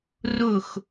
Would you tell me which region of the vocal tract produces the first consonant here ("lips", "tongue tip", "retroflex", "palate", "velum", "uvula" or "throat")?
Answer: tongue tip